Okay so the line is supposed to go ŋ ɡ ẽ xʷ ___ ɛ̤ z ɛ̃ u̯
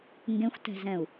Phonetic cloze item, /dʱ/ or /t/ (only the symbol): t